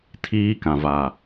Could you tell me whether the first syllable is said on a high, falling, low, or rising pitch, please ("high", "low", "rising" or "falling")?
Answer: high